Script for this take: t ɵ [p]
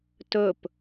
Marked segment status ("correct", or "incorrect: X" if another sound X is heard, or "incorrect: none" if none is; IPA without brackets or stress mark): correct